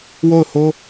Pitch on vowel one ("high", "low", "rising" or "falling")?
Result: falling